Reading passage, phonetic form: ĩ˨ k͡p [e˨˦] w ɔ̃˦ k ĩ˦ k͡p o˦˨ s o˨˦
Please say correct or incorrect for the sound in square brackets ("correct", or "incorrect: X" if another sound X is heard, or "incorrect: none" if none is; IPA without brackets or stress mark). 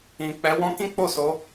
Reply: incorrect: ɛ˨˦